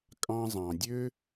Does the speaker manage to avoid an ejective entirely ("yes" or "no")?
no